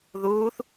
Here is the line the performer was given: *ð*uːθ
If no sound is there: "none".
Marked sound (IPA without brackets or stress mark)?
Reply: ð